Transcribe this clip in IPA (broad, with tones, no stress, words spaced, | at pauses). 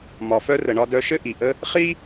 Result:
mɒ˩fœ˥rə˩ ɳɒ˧dœ˧ʃɘ˥ ʔi˩ʔə˥ | χi˥